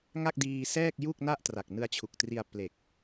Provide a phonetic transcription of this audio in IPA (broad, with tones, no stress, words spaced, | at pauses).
ŋa˥˩k̚diː˧sɛː˥˩k̚ ju˥˩k̚na˥˩ʔtra˨˩k̚ nɯ˧a̯t͡ɕʰu˨˩k̚tri˧a̯ ple˨˩k̚